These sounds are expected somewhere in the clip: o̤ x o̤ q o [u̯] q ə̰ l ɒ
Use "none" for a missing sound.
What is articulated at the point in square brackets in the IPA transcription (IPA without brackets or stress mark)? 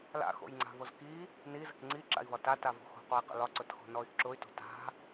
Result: i̯